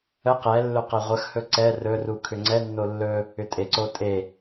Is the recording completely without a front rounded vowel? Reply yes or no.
no